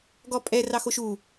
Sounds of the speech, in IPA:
ɡ ɔ pʼ ɛ r ɑ x o ʃ u

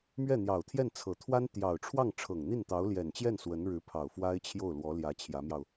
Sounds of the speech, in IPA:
m ɥ ɛ˥˩ n̪ j ɑ˨˩ ʊ̯ t̪ʰ j ɛ˥˩ n t͡sʰ ɤ˨˩ t̪ʰ w a˥ n t̪ j ɑ˨˩ ʊ̯ ʈ͡ʂʰ w ɑ˥˩ ŋ ʈ͡ʂʰ ɤ˨˩ ŋ n̪ i˥˩ n t̪ ɑ˧˥ ʊ̯ l j ɛ˨˩ n t͡ɕ j ɛ˥˩ n s w ə˧˥ n ɻ ɻ̩˧˥ pʰ ɑ˨˩ ʊ̯ f w a˥ ɪ̯ t͡ɕʰ j o˥˩ ʊ̯ l w ɔ˧˥ l j ä˧˥ t͡ɕʰ j ä˧˥ m j ɑ˧ ʊ̯

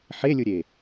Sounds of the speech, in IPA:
ħ e lʲ ɯ ɾʲ e

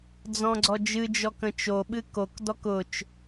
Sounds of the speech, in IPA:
d͡z ɔ̃ ɡ͡ǀ ɔ d͡ʒ ɨ d͡ʒ ɔ k ə̃ t͡ʃ o ɓ ɨ k o k d ɔ k ʊ t͡ʃ

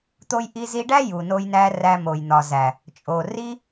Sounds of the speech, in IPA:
t̪ o˧ j ʔ i˧ z i˧ ɖ æ˦ j u˨ n o˧ j n æ˧ r æ˧ m o˨ j n̪ ɒ˨ z æ˨ | t͡ʃʼ o˨ r i˦

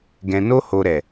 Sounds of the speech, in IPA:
ɡ ɛ̃˨ n o˧ h o˨ ɾ ɛ˨

